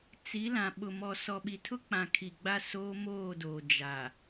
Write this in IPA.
t͡si˨˦ lã˨ɓʊ˨mɔ˨ sɔ˨ɓi˨tʰʊ˦k͡pã˨ kʰi˨ɡ͡ba˦ soː˦moː˦˨doː˨ d͡ʒa˨

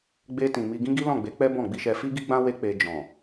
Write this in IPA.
ɡ͡be˧tĩ˨ mi˧ɡĩ˦ ɡi˦lɔ̃˦˨ɡ͡be˨˦ k͡pɛ˦bɔ̃˦˨ ɡ͡bi˧ʃɛ˧ fi˦ɡi˦ɡ͡bã˦ we˦ k͡pe˧ d͡ʒɔ̃˨

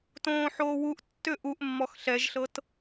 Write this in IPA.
tõːħoːwuʔtːʏ ʔuʔmːɔx ɬɛʒɬɤt

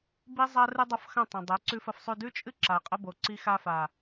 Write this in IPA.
bi˦zˤa˦ rɨ˦dˤɐ˦fxɐ̃˦˨ tˤɐ̃˨dˤe˨˦ ǀʉ˧fɐ˧fsˤʉ˧ dʉ˦t͡ʃʼɨ˦ ǁa˨qʼɐ˦bo˨ ǀi˧xa˧fa˨

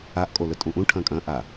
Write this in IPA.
aʔkʼolɵ tʼũʔũ ʈʰɐ̃ːkʼɐ̃ː ʔa

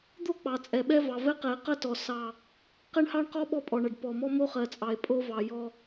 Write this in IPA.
d̪o˦ k͡pɑ˨t͡sʼɛ˨ɓɛ˦ vɑ˨vɛ˦qɛ˨e̯ qɐ˦tɔ˨ sɑ˦˨ | qɛ˦ɳhɑ˦ɳqɔ˦ ɓɔ˦pʼɔ˨ɳɐ˨ɖ pɔ˨mɔ˦ mo˦χɜ˨t͡sʼɑ˨e̯ pʼo˦vɑ˨ jɔ˦

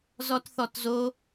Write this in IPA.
zɔtθɔtzo

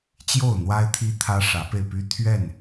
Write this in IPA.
t͡ɕjo˥˨ʊ̯n̪wa˦ɪ̯ t̪ʰi˦t̪ʰä˦ ʂä˨˦pe˧ɪ̯py˦ t̪ʰɥɛ˥˨n

